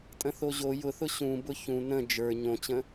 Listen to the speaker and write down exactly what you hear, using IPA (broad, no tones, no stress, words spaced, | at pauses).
tʼə̃θoʑo jʊθʊ ɕũbʊ çũ nə̃ d͡ʒə˞ ɲõt͡ɕə̃